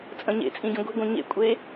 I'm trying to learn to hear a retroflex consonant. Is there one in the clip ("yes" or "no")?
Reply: no